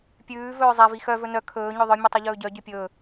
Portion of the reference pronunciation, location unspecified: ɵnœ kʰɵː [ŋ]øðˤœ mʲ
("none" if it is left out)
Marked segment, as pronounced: ɲ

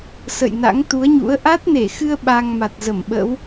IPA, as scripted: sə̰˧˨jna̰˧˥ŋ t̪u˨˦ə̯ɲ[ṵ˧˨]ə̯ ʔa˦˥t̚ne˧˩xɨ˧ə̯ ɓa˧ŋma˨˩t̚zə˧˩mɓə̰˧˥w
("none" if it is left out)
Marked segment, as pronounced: ṵ˧˥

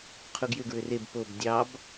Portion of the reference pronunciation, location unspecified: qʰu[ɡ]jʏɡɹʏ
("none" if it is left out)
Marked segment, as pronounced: ɡ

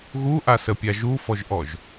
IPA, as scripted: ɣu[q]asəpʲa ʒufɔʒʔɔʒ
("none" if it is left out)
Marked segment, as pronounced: ʔ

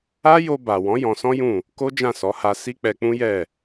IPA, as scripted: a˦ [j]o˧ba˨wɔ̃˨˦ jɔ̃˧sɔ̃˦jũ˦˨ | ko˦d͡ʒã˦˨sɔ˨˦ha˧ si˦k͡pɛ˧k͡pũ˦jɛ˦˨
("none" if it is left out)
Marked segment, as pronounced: j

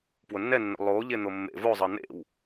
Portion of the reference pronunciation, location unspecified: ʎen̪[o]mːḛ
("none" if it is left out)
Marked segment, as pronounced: o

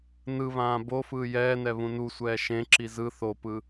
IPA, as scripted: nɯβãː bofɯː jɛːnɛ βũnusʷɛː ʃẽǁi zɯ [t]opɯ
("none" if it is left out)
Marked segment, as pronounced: θ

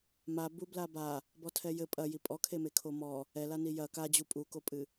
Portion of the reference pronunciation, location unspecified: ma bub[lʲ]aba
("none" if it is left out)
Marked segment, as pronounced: l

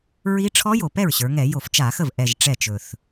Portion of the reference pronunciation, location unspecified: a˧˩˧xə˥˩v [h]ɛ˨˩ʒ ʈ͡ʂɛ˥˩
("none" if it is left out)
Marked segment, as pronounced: ʔ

